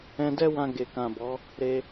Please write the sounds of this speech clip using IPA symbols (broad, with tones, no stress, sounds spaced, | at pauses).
ɛ̃˧ d ɛ˦ w ã˧ ɡ e˨ k ã˨ b ɔ˨˦ | ɾ e˧